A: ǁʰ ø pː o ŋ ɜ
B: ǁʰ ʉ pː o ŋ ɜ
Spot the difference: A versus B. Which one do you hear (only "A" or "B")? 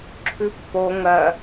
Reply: B